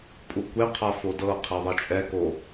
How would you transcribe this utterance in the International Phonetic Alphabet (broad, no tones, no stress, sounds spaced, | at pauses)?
pʼ u kʷ e qʰ a f o d ɤ qʰ i ðˤ i t͡ʃʼ ɛ k o